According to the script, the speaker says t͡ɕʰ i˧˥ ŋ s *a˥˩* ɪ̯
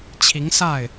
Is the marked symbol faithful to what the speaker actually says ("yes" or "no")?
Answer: yes